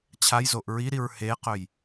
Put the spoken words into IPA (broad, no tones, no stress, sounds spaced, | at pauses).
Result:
t͡ɕʰ a j z o ʔ ɹ i ɾ i ɹ h e q ɵ j